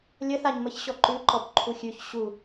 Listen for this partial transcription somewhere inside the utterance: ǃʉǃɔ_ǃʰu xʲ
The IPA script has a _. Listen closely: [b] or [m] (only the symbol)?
b